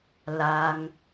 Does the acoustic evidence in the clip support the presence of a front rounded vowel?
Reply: no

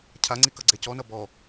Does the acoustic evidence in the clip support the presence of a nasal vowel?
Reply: no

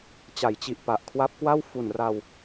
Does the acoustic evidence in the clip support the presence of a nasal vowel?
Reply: no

